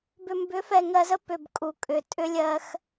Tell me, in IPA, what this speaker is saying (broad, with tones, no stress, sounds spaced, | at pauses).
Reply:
b ʏ˨ m b ʏ˨˦ f ɛ˨ ŋ ɜ˨ z ə˦ p ʏ˨ b kʼ u˨ kʼ ʏ˨ tʼ ʏ˦ lʲ ɜ˦ x